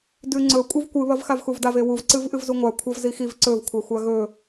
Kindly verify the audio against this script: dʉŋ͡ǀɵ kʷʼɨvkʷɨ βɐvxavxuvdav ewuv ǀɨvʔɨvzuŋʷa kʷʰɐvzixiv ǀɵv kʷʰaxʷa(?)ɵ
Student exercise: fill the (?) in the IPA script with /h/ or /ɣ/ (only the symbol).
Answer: ɣ